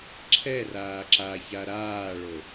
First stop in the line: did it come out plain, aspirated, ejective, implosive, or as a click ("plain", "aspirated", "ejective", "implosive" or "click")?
click